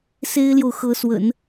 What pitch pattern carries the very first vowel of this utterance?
high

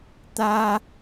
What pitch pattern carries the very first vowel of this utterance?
high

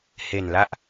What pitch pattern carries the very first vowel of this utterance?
low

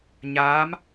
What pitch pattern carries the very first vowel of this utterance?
rising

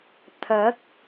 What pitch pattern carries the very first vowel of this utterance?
rising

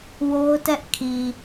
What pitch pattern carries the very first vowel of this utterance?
high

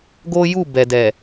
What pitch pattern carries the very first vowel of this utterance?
high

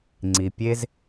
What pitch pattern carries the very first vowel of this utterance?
low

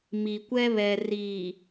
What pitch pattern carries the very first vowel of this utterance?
low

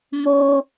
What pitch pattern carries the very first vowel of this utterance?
high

